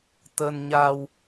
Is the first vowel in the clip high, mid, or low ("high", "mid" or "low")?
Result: mid